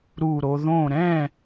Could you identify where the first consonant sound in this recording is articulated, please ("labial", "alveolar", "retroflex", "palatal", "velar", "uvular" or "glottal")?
alveolar